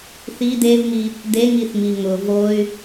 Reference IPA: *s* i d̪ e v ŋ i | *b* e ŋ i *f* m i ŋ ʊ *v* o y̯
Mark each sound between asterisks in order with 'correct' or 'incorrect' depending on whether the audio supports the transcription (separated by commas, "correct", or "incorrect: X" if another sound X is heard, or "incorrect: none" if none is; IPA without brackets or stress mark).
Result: incorrect: θ, incorrect: d̪, incorrect: θ, correct